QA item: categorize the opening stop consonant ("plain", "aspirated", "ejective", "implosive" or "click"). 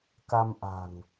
plain